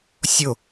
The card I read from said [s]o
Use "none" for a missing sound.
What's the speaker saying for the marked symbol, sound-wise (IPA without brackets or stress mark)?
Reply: sʲ